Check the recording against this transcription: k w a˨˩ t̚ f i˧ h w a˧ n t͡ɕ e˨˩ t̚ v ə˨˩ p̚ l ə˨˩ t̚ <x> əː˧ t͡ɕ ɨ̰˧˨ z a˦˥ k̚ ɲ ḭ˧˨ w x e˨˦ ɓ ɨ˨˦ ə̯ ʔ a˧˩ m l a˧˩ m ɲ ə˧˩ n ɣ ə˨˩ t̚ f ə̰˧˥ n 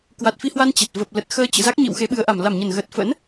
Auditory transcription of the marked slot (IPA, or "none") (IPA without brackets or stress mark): x